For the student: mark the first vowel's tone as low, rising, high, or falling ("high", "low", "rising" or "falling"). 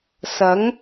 rising